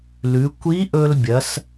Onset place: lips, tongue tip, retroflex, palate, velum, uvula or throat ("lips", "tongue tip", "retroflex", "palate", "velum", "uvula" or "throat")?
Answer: tongue tip